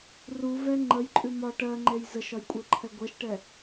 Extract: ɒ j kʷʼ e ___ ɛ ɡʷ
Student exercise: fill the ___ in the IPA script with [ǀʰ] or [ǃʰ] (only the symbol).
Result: ǃʰ